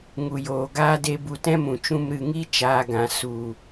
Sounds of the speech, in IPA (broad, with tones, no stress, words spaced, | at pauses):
ŋu˨joː˨ ɡaː˦de˧ bu˨tɛ̃˦mũ˨t͡ʃũ˧m ɾɨ˨ŋi˦ t͡ʃaː˧ɡã˨ su˨